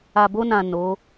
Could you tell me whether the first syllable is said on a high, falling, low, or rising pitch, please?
low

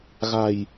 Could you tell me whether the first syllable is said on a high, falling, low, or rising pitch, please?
low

